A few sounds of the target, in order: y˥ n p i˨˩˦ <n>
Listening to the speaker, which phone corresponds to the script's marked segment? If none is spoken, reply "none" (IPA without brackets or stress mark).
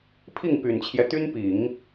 ŋ